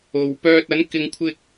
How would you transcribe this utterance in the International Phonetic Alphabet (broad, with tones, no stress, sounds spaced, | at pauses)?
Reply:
o˨ w p œː˧ t̚ ɐ˨˥ n k ɪ˧ ŋ kʷʰ ɪ˥ k̚